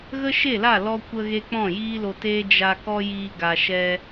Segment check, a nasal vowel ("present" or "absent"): present